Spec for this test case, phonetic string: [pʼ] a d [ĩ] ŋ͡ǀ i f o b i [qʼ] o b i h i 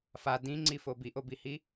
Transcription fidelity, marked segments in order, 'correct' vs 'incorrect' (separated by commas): incorrect, correct, incorrect